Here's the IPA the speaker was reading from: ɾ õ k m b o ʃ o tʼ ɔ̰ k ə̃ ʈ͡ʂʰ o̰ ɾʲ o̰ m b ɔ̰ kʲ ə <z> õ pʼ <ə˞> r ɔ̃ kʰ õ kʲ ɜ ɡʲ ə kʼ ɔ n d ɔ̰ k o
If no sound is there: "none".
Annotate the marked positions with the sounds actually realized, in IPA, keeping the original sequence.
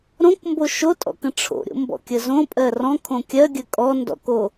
z, ɜ

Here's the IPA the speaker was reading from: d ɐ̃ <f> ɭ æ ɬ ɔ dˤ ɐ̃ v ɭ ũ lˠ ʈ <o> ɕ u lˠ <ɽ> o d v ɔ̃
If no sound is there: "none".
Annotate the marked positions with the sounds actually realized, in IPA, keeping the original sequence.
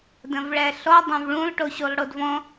v, o, ɽ

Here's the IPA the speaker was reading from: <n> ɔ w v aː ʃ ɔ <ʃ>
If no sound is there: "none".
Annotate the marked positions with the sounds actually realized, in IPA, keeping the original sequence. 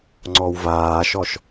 ŋ͡ǀ, ʃ

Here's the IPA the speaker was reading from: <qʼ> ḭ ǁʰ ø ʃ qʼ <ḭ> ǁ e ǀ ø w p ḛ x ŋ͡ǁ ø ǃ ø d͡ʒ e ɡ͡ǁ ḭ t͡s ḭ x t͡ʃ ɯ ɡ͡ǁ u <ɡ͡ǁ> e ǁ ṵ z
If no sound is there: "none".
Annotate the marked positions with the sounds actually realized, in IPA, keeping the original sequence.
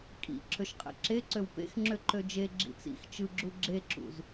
kʼ, ḛ, ɡ͡ǁ

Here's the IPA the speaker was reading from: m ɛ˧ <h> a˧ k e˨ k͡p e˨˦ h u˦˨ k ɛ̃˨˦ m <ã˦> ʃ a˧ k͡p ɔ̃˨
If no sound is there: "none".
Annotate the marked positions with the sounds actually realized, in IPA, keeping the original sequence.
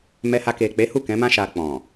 h, ã˦

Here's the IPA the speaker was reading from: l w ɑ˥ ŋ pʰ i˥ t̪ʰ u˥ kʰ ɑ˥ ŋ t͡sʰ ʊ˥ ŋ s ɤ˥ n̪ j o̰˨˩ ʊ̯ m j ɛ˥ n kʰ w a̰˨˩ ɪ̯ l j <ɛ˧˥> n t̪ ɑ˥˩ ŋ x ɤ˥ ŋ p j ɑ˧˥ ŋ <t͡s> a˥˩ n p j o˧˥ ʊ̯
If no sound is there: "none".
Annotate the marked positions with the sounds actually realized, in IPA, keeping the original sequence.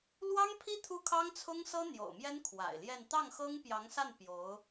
ɛ˥˧, s

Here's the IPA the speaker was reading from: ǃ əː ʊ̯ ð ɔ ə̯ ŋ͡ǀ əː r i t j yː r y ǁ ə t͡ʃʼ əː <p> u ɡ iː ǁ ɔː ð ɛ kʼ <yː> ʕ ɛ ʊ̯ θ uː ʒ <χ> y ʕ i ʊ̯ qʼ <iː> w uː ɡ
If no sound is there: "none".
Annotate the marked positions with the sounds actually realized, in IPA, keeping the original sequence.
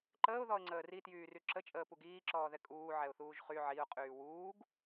p, uː, χ, yː

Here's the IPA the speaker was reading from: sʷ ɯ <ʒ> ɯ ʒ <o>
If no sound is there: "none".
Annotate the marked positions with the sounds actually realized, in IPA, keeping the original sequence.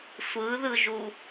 ð, u

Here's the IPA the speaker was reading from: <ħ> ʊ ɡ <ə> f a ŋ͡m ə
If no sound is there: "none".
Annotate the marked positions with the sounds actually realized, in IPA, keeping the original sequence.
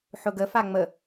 ħ, ə

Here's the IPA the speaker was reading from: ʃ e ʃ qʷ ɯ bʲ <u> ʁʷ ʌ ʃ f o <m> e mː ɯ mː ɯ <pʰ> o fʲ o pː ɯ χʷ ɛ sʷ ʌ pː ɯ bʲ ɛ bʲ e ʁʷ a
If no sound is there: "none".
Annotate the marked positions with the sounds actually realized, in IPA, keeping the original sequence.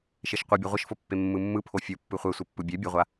o, pː, pʰ

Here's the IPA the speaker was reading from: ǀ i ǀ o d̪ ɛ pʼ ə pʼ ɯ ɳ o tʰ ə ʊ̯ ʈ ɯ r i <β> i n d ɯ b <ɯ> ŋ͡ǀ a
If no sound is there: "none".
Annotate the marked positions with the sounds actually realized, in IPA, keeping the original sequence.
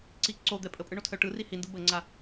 h, ə

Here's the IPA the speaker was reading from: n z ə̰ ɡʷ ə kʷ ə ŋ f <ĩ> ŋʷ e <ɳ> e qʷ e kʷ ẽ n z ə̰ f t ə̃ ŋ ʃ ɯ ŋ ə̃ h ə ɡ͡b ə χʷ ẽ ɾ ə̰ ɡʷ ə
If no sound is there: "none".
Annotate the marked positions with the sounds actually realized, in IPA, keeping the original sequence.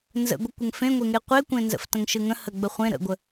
ẽ, ŋ

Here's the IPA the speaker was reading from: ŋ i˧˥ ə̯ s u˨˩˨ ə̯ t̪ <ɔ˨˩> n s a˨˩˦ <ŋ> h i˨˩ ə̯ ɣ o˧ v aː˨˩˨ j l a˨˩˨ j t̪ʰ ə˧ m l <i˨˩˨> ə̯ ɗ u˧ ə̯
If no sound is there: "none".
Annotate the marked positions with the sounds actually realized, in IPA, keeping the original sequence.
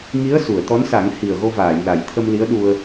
ɔ˧˥, ŋ, i˧˥

